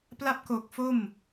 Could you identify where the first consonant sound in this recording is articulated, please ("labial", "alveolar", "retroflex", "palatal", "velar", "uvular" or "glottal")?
labial